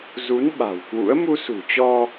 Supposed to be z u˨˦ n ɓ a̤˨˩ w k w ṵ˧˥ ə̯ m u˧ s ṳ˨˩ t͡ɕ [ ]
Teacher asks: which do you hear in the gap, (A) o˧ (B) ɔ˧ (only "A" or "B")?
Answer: B